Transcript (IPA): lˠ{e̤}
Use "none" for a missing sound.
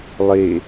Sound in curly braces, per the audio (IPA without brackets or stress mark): e